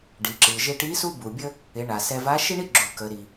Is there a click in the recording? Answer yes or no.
yes